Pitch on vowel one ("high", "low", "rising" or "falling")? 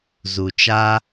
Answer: low